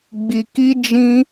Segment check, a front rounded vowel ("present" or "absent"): absent